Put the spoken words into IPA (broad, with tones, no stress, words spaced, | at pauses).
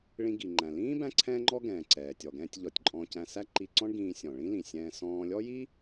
ɭĩ˧ɡi˩ŋ͡ǃæ̃˩ lĩː˥ bæ̃˥ǀʰɛ̃ː˥ŋ͡ǃɔ˥ ɡɛ̃ː˩ǀɛː˩ tʲɔ˩ɡɛ̃ː˧tʲʎɔ˩tʲ ǃʼɔ̃ː˧cæ̃˧sæ˥ ǃi˧ǀɔ̃˥ɳɡĩː˧ sʲɔ̃˩ ɭĩ˥lĩ˩sʲɛ̃ː˧ sɔ̃ː˧lʲɔ˥ji˥